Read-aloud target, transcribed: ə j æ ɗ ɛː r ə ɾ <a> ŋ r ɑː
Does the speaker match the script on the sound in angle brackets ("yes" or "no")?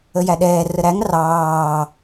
no